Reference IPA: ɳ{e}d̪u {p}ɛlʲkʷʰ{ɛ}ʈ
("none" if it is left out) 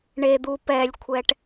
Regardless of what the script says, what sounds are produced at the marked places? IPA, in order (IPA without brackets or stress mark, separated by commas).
e, p, ɛ